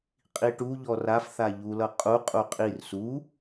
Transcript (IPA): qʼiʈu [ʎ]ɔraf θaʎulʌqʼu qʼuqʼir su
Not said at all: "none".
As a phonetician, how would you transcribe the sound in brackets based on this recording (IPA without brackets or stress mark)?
ʎ